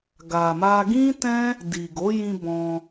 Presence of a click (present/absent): absent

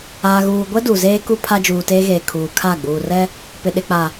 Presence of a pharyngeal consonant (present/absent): absent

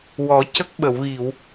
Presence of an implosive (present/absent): present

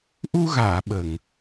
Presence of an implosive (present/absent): present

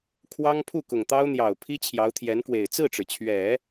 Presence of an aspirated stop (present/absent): present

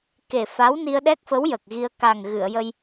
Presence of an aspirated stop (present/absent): absent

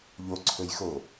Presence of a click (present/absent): present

